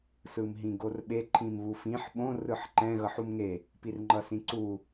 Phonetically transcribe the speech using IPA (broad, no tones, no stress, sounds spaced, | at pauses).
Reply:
s ɯ m ɦ ĩ ɡ o r ɓ e ǃʰ ĩ m β u f ĩ ħ ɓ õ r ɯ ħ ǃ ɛ̃ ɣ ʌ ħ u m ŋ e | p i r ŋ͡ǃ ʌ s ĩ ǀ u